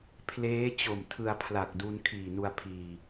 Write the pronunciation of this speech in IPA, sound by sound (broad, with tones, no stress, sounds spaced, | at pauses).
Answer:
pʰ l eː˦˥ t͡ɕ o˨˩ m tʰ ɯ˧ a̯ pʰ l a˨˩ k̚ d u˧ n kʰ iː˨˩ n u˧ a̯ pʰ iː˨˩